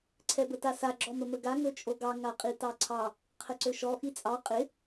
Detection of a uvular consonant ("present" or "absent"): present